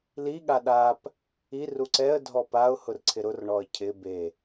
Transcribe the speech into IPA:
l i ɠ a ɗ a p | i r u ǀ ɛ ə̯ dʱ ɔ p a ʊ̯ h ʊ r ǀʰ ɪ ɾ ʊ r ɳ ɔ ə̯ cʰ ɪ b e

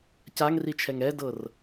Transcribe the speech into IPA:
c a ŋ r i t͡ʃʰ ɛ ŋ ɛ d ɤ r

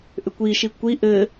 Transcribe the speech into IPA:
ʔ ʏ kʷ i ʃ i kʷ i ʔ ɘ

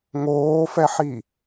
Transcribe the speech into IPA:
ŋ oː f ɛ ħ i

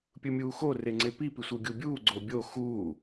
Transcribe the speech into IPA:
pʲ ɯ mʲ uː x o r e ŋ͡ǀ e p i p i sʷ ɯ ɡʲ u bʲ uː ɡ͡ǀ o bʲ o x uː

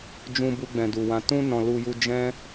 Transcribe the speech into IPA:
d͡ʒ ũ˧ b u˧ ɡ͡b ɛ̃˨ d u˨ w ã˨ t ũ˧ n ɔ̃˨ l u˧ j u˧ d͡ʒ ɛ̃˦

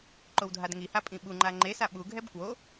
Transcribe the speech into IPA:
ǃ o w dʱ a d ŋ i h a pʼ ĩ ɓ u ŋ͡ǃ a ŋ͡ǃ e s a ɓ u ɡʱ ɛ b k w o

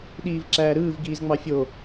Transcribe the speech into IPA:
ɗ iː v ǁ æː ɾ ɯː v ɡ iː z ŋ͡m ɑ fʲ o

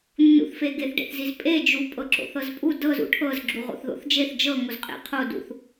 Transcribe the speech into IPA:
nː ṵ θ f e ɡ e θ ɖ ḛ θ z i z pʼ e d͡ʒ u pʼ ɤ ǁ o̰ θ ɤ z pʼ u d ɤ z ṵ ʈʰ ɤ z ɡ͡ǁ u ʁ o̰ θ ð o̰ θ d͡ʒ e θ d͡ʒ ɤ ŋ o z qʼ ḛ qʰ o d ṵ θ

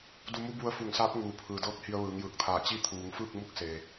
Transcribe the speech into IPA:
d u˧ m u˧˥ b u˧ ə̯ f u˧˩ ŋ s aː˧˥ p̚ ŋ uː˩ pʰ ɯː˩ d ɤː˧˥ k̚ h i˧ ə̯ ʋ ɯː˩˧ ŋ j ɯː˧˩ k̚ t̪ʰ aː˧˩ t͡ɕ i˧˥ t̪ʰ uː˩˧ ŋ f ɯː˥˨ k̚ m u˧˥ k̚ s e˩

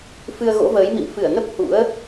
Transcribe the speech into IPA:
f ɨ˧ ə̯ ɣ o̰˧˥ v əː˨˦ j m ḭ˧˨ m f ɨ˧˩ ə̯ n ə˦˥ p̚ h ṵ˧˥ ə̯

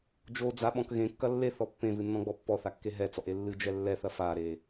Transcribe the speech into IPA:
d͡ʒ o d͡z a ɓ ɔ̃ k ɣ ẽ kː ɐ lː e θ ɔ pː ẽ v ɨ nː ɔ̃ ɡ͡b ɔ pː ɔ θ a kː e ɦ ɛ t͡s ɔ ʔ e lː ɨ d͡ʒ ɛ lː ɛ θ ɐ f a ɾ e

